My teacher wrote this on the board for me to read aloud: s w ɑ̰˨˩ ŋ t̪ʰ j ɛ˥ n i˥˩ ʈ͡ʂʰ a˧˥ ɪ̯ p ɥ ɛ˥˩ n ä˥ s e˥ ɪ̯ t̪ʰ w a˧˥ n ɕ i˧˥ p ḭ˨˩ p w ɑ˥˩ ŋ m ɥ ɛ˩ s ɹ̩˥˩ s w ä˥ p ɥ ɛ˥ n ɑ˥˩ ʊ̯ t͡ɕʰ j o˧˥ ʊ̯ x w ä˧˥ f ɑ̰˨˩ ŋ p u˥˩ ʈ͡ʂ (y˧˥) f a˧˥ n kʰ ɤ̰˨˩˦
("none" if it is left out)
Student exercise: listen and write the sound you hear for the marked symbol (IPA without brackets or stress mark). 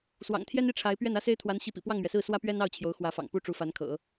u˧˥